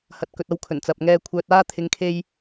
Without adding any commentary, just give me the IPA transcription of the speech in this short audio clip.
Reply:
h ɐ˨ t̚ k ɵ˨ t̚ ɐ˧ w kʰ ɵ˨˩ n t͡s ɐ˨ p̚ ŋ ɛː˧ kʷʰ œː˧ t̚ aː˥ t̪ʰ ɪ˨˧ ŋ kʰ e˧ j

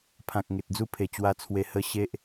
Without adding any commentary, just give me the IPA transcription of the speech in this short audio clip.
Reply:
pʰ ã˨ k̚ ŋ e˨ t̚ d͡z u˦ pʰ e˨˩ t͡ɕ w a˧ t͡sʰ w e˧ h ə˥˧ ɕ e˦ ʔ

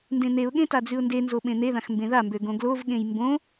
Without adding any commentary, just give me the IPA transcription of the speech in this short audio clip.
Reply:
n d ẽ n̪ e ʊ̯ ɠ ẽ t a d͡z ʉ ʊ̯ n d e n z o ɓ ẽ n̪ e ð ã x m b ẽ ð a m b ø ɡ õ ɡ l o v ɠ ẽ j m b õ

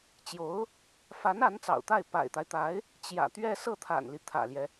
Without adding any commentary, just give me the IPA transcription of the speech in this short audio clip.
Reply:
t͡ɕ j o˧˥ ʊ̯ | f a˧˥ n a˧˥ n t͡s ɑ̰˨˩ ʊ̯ t̪ a˥˩ ɪ̯ p a̰˨˩ ɪ̯ t̪ a˦ ɪ̯ t̪ a˧˥ ɪ̯ | t͡ɕ j ä̰˨˩ t̪ ɥ ɛ˥˧ s ɤ˥˩ t̪ʰ a̰˨˩ n l i˦ t̪ʰ ä̰˨˩ l j ɛ˦

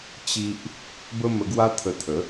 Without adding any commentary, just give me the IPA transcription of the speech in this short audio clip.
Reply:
t͡ɕ i˦ ʔ | b ə˦ m ə˧ ɡ w a˦ t̪ʰ ə˧ t̪ʰ ə˨˦

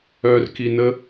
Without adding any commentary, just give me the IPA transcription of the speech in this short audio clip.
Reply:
œ r k i n ə

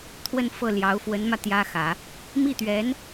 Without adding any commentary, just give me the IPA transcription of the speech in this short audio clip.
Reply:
t̪ʰ w ə˥˧ n f ɤ˥˩ l j ɑ˧˥ ʊ̯ f w ə˧˥ n m ä˧ t̪ j ä˥ x ä˨˩˦ | m i˥˩ t̪ ɥ ɛ˧˥ n

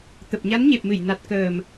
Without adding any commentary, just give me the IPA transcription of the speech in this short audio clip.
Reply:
t̪ ə˨˩ p̚ ɲ a˨˦ n ɲ e˨˩ p̚ m ɨ˧˩ j n a˨˩ t̚ k əː˨˩ m

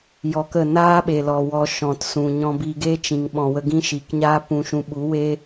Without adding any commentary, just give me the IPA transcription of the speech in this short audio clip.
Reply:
j ɔ˧ k ə˦˨ n aː˦ ɓ e˨ l ɔ˨ w ɔ˧ ʃ ɔ̃˨ t s ũ˨ ɲ ɔ̃˧ b i˧ ɡ e˦ t͡ʃ ĩ˨ ŋ ɓ ɔ̃˨ w ə˧ ɡ ĩ˦ ʃ i˨ k ɲ aː˦ p ũ˧ ʃ ũ˧ ɓ u˨˦ w e˦

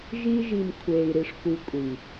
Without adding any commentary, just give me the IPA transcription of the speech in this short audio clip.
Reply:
ʒ i˧ ʒ i˨ m kʷʰ eː˨ i̯ ɾ i˨ ʂ kʷ i˨ kʷʼ i˨

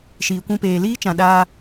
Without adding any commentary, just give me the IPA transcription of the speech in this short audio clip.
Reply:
ʃ iː˨ kʷ ũ˧ p eː˨ l iː˦ t͡ʃ ã˨ ɗ aː˧

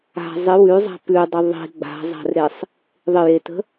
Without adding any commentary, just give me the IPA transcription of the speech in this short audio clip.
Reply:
a̤ zˤ ɪ w ʉ zˤ a̤ p ʉ dˤ ə ðˤ i̤ ɡ͡b a̤ zˤ a̤ r ɾ e sˤ | ðˤ ɪ j e t ə̤

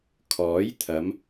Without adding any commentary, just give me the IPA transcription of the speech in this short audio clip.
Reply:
kʰ ɔː˨˥ j t̪ʰ ɐ˨˧ m

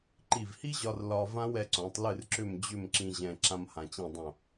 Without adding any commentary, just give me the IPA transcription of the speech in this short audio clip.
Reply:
ǃ i˧˩ v h i˥ ʑ ɒ˧ r l ɒ˧ v ã˥ w ɛ˧ ǀ õ˩˧ tˤ l ɨ˥˧ r ǁ ʏ˥˧ m d͡ʑ ʏ˥˧ m ǁ ĩ˧ ʑ ɛ̃˧ ǁ ã˥ m h ã˧ t͡ɕ ĩ˥˧ dˤ õ˥˧

